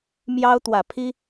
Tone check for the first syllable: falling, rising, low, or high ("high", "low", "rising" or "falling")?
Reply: high